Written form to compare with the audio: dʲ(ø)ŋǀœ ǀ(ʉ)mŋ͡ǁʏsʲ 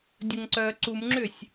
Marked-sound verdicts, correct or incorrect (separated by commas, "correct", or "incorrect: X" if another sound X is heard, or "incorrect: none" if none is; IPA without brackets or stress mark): incorrect: ə, incorrect: u